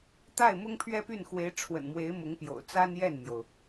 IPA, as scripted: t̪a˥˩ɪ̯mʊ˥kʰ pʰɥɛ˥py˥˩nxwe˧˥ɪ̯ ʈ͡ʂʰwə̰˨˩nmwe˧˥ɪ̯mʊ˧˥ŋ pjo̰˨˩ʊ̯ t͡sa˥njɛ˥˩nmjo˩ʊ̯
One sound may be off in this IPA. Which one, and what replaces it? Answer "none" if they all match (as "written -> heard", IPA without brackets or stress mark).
kʰ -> ŋ